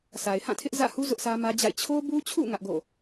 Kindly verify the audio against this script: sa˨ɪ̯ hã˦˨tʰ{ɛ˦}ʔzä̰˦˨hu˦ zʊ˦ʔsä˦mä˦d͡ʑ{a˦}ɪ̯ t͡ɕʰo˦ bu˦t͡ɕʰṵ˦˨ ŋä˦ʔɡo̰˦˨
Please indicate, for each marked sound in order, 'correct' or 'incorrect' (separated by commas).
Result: incorrect, incorrect